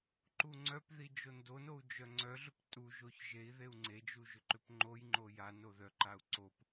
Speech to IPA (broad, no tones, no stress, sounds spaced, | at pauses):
ǃ u ŋ͡ǀ œ p ð i d͡ʒ o n d o n o u̯ d͡ʒ œ ŋ͡ǀ œ ɮ ʏ p tʼ u ʒ o ç ʒ e i̯ ð e u̯ ŋ͡ǀ e d͡ʒ u ʒ ʏ ǃ ʏ p ŋ͡ǃ o j ŋ͡ǃ o j a n o ð œ ǃ a u̯ ǀ o p